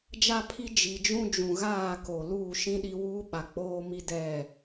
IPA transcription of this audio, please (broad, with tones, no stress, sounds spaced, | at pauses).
d͡ʒ a˦ pʰ i˦ d͡ʒ i˨ d͡ʒ ũ˦ d͡ʒ ũ˨ ɣ aː˦˨ k o˨ l uː˦˨ ʃ ĩ˦ ɗ i˦ w uː˦ ɓ a˨ k͡p oː˦ m i˦ d ɛ˦˨